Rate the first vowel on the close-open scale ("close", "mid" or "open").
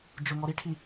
close